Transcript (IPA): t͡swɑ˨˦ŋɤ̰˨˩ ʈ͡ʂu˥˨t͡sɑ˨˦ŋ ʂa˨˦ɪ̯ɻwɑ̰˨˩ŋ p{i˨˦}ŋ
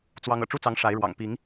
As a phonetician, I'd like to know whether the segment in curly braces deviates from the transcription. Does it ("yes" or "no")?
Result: no